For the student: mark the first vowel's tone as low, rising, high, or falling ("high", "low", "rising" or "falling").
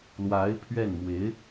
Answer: rising